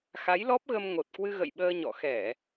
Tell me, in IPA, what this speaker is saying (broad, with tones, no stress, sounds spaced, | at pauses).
x a˨˦ j l ɔ˦˥ p̚ ɣ ə˧ m ŋ o˨˩ t̚ k w ɨ˧ ɣ ə̰˧˨ j ɓ əː˧ ɲ ɔ̰˧˨ x ɛ˧˩˨